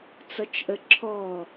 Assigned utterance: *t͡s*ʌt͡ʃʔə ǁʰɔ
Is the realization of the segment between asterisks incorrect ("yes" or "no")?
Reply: no